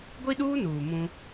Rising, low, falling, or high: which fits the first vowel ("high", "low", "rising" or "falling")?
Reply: high